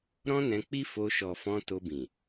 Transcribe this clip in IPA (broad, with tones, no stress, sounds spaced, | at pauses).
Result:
ɾ ɔ̃˦ n ɛ̃˧ k͡p i˦ f o˧ ʃ ɔ˨ f ɔ̃˧ t o˧ b ĩ˨